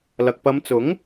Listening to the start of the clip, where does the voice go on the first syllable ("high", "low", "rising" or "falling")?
low